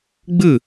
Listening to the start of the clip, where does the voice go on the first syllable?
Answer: falling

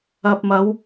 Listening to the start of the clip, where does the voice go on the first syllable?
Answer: low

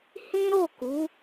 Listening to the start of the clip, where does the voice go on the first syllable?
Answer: high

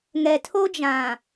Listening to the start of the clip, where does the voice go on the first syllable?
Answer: low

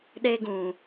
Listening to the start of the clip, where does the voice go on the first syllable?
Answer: high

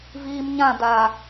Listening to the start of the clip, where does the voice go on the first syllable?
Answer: low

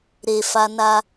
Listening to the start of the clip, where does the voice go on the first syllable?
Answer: low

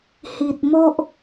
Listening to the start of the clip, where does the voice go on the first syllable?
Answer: low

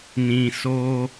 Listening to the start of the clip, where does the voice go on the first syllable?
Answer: low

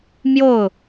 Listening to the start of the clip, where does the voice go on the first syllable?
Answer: falling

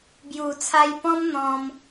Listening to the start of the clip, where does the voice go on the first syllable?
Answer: low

